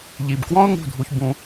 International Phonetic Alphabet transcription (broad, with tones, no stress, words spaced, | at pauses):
ʎi˨bkwɔ̃˦ʊ̯ ŋṳ˦˨dʱu˧çbũ˧